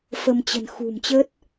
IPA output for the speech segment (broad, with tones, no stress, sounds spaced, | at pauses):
f ə˧ m t͡ɕ ə̤˨˩ n x ṳ˨˩ m t͡ɕ ə˦˥ t̚